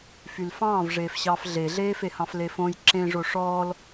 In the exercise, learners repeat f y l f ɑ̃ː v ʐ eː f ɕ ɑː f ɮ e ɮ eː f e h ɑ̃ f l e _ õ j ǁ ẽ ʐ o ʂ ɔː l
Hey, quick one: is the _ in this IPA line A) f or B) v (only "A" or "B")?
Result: A